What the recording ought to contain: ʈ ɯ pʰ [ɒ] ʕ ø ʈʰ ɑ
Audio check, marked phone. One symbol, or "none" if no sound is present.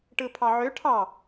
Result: ɑ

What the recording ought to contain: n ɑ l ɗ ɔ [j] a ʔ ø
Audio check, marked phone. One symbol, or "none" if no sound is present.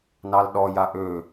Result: j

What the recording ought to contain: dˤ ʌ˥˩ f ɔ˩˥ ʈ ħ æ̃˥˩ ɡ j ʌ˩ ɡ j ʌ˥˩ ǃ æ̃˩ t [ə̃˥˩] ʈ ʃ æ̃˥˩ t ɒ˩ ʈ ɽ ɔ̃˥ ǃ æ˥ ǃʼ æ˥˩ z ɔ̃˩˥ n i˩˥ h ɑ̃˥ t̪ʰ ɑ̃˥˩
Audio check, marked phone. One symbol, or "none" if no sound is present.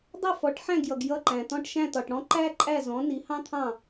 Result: ɔ̃˥˩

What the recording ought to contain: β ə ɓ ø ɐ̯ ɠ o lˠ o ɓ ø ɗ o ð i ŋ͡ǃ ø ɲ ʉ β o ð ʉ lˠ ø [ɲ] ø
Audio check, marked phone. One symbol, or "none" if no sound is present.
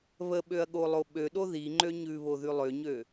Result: ɲ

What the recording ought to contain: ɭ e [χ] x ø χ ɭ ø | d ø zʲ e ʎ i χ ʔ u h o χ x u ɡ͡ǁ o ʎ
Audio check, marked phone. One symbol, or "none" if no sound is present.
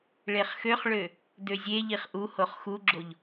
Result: χ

